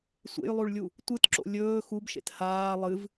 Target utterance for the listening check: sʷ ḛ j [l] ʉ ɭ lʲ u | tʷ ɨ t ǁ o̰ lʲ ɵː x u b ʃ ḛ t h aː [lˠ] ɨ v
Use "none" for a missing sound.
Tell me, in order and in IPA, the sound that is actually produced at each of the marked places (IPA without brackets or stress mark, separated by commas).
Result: lˠ, lˠ